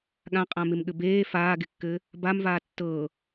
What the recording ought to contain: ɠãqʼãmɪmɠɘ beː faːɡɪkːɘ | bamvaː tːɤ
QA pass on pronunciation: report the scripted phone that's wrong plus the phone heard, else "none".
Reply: none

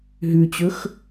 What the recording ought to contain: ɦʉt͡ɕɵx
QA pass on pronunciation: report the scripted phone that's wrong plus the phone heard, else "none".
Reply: none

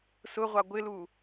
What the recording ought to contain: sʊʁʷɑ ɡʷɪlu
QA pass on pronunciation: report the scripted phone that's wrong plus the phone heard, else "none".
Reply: none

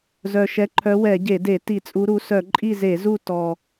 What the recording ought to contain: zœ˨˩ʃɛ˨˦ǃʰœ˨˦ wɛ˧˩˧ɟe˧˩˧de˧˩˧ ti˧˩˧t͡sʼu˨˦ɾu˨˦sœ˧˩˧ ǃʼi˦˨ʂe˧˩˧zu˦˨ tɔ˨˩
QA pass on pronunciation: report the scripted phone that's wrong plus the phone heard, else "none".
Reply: ʂ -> z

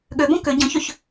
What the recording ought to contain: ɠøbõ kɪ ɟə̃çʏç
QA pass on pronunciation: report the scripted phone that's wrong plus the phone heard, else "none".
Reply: ɪ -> ʏ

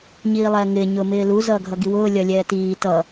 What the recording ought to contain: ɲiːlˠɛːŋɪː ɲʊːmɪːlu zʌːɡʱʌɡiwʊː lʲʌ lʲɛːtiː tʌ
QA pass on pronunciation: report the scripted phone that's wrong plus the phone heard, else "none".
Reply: none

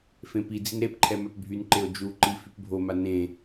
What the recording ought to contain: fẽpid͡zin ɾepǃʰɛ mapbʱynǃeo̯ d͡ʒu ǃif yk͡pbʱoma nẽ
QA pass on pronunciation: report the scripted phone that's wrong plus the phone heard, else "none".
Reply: k͡p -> p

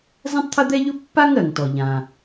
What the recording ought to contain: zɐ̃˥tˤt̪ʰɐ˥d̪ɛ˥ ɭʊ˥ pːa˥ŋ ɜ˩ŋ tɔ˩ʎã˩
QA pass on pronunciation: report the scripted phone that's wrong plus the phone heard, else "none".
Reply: ɭ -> ʎ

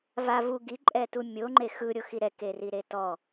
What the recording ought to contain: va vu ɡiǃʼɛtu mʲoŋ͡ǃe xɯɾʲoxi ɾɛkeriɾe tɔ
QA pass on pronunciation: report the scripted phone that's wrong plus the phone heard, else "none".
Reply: none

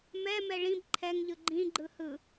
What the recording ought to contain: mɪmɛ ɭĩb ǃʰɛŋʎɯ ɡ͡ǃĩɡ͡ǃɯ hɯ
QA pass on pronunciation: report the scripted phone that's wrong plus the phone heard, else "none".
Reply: ɪ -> ɛ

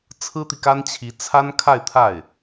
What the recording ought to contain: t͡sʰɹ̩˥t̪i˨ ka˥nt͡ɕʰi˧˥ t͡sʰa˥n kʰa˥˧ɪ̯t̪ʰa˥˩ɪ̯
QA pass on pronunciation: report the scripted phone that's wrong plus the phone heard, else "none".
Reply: none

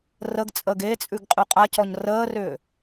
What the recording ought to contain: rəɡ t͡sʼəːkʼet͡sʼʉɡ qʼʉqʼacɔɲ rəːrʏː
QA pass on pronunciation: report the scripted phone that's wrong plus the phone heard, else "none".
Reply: kʼ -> ɡ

